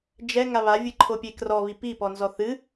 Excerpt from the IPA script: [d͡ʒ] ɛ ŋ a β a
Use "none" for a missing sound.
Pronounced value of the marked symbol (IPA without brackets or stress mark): d͡ʒ